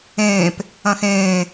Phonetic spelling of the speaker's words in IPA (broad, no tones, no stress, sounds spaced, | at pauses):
ẽː p | ɐ̃ x ẽː